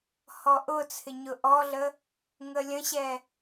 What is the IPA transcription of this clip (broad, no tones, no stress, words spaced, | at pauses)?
hɔʔʊt͡sʰɪ ɲʊʔɔɮə | ŋəlʲə̃ɕɛ